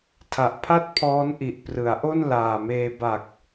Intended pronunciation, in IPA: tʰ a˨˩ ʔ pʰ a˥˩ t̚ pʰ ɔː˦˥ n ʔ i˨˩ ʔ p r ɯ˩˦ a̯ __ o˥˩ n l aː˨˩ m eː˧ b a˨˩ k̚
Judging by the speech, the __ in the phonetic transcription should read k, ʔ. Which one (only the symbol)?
ʔ